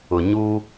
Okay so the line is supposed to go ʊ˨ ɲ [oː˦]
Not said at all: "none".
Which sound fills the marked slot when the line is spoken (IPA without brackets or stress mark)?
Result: uː˦